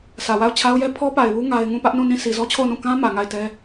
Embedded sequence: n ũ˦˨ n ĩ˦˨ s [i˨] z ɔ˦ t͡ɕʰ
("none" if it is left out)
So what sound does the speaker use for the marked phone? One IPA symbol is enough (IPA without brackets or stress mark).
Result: i˨